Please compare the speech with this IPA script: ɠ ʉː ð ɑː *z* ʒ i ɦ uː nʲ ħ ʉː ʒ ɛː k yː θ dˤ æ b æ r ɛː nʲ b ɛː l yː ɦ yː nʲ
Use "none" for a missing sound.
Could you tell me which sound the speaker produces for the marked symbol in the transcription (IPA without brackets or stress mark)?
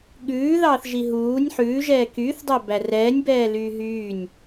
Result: θ